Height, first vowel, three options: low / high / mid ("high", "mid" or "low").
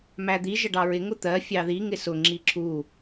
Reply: low